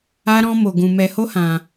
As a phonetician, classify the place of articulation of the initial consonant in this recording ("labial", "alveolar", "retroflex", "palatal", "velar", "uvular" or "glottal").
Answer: alveolar